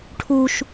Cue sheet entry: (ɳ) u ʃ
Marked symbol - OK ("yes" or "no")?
no